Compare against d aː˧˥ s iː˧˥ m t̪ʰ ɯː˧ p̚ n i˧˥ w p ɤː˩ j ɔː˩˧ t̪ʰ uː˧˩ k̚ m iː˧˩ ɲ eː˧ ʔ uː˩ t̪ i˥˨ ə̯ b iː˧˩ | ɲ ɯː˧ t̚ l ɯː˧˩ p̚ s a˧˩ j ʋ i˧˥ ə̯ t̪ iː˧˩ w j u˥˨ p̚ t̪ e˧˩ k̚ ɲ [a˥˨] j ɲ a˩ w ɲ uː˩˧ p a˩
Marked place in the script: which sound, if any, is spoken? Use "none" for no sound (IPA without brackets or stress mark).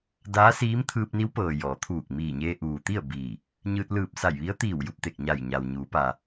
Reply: a˧˩